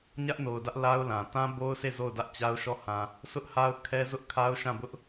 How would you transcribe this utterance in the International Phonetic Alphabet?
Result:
ɲ ä˦ ʔ n o˨ ʊ̯ d ä˦ ʔ l a˦ ʊ̯ l ã˨ t ã˦ b o˦ ʊ̯ sʰ e˦˨ z o˦˨ ʊ̯ d ä˦ ʔ t͡ɕ a˦ ʊ̯ ʃ ɔ˦˨ h ã˨ | sʰ ʊ˦ ʔ h a˦ ʊ̯ kʰ ɛ˦ z ʊ˦ ʔ kʰ a˦ ʊ̯ ʃ ã˦˨ b ʊ˦ ʔ

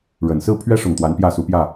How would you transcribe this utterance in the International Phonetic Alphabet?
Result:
ɻ ə˨˩ n s ɹ̩˥˨ pʰ ɥ ɛ˦ ʂ ʊ˨˩ ŋ t̪ w a˨˦ n p j ä˥˨ s u˨˦ p j ä˥˨

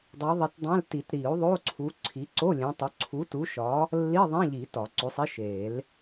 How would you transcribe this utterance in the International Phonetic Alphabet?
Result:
dˤ i˨˦ ðˤ i˨˦ t dˤ æ̃˧˥˧ l t i˨˩˦ t ɾ i˨˩˦ u̯ ðˤ o˧˥˧ ǀʰ u˨˦ ǀʰ i˨˦ ǀ o˧˥˧ lʲ ẽ˨˦ tˤ o˨˦ ǀʰ u˨˦ t u˨˦ ʃ ɒ˨˦ | lː i˧˥˧ ðˤ ẽ˧˥˧ ʎ i˨˩˦ t ɒ˨˩˦ ǀ o˨˦ sˤ i˧˥˧ ʃ e˨˩˦ l

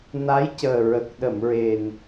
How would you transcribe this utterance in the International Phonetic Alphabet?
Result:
n a˧˥ j c əː˨˩ ɹ ə˨˩ k̚ ɗ ə˨˩˨ m ɹ e˨˩ n

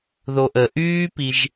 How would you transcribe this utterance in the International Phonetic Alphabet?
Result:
ð o ʔ ə ʔ yː p i ʒ

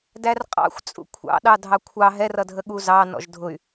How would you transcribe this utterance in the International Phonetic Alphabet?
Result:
d æ r qʼ ɑ̰ xʷ t͡sʼ ṵ kʷʰ ɑ̰ ɗ ɑ dʱ ɑ kʷʰ ɑ ɦ ɛ r ʌ dʱ ə ɠ u z ɑ n ɔ̰ ʒ dʱ ʊ y̯

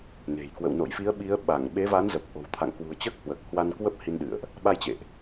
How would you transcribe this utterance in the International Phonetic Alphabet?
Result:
n e̤˨˩ j k w ə̰˧˨ w n o̰˧˨ j f i˨˦ ə̯ ɓ i˨˦ ə̯ ɓ a˧˩ ŋ ɓ e˨˦ v a˨˦ n z ə˨˩ p̚ ʔ o̤˨˩ w t̪ʰ a̰˧˨ ŋ k w ṳ˨˩ ə̯ t͡ɕ əː˦˥ k̚ h w əː˨˩ k̚ h w a˧ n k w ə˦˥ p̚ h i˧ n ɗ ɨ̰˧˨ ə̯ ʔ | ɓ a˧ j t͡ɕ ḛ˧˨ ʔ

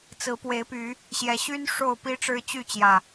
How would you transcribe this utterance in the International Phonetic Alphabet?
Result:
t͡s ɹ̩˨˦ p w e˨˦ ɪ̯ p y˨˦ | ɕ j ɛ˨˦ ɕ y˦ n ʂ o˥˨ ʊ̯ p i˦ ʈ͡ʂ ɻ̩˦ t͡ɕ y˥˨ t͡ɕ j ä˨˩

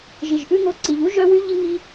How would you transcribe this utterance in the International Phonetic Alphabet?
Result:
ʒ i˨ ʒ ʔ ʉ˦ ŋ o˧ ǀ i˨ ʎ u˦ ʒ œ˦ w y˦ ʎ i˦ ŋ i˦

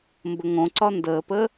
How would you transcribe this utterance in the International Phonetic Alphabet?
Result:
m b ə ŋ õ ǀ ɒ n d əː p ə

